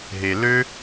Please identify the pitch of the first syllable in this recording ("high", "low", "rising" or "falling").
low